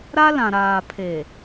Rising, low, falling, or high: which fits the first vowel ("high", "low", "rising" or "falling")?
high